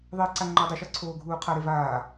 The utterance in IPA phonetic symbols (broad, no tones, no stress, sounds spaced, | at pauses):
ðˤ e ǀ a ŋ͡ǃ ɔ dˤ i ʃ ɔ ǀʰ oː ɡʱ uː qʰ a ɾ e v aː